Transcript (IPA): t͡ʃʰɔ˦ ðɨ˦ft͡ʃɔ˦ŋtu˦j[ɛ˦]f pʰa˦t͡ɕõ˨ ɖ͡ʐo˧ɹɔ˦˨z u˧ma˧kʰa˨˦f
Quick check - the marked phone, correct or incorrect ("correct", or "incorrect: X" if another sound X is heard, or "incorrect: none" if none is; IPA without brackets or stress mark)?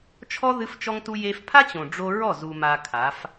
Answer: incorrect: e˦